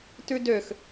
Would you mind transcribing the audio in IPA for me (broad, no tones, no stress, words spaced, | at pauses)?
tʉdøx